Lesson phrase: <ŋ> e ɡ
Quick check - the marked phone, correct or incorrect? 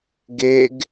incorrect